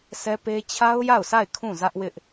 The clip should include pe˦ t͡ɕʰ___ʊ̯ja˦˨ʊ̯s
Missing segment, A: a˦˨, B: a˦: B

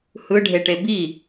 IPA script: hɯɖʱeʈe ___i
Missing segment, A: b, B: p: A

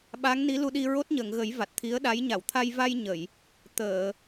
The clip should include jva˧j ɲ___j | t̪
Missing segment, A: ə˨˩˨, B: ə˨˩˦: A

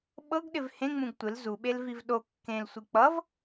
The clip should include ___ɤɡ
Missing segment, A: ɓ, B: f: A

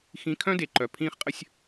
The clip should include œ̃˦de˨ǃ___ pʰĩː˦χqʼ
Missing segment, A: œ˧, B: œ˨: B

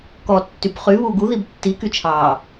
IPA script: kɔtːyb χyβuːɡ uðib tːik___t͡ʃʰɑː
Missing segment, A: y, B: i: A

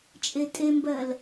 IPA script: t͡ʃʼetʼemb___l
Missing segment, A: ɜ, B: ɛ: A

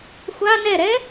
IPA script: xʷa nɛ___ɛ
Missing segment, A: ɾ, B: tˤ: A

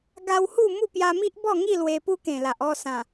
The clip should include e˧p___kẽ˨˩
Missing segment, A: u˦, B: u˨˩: A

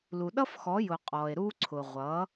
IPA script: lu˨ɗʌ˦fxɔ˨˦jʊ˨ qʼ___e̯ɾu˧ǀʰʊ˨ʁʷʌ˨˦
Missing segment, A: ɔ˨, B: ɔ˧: A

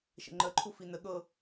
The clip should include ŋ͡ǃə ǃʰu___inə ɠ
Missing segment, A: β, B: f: B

